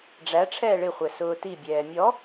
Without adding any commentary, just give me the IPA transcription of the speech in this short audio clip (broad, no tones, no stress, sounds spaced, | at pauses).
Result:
ɖ͡ʐ æ ʈ͡ʂʰ ɛː ɭ ɪ χʷ ɛ s ʊː t i bʲ ɛː mʲ ɔ